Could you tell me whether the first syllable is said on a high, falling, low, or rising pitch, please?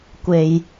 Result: low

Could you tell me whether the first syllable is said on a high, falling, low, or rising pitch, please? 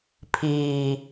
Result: low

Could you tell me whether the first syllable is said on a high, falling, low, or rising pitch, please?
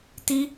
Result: high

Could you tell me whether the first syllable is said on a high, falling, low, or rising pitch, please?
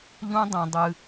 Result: high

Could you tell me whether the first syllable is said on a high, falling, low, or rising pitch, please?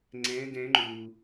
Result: rising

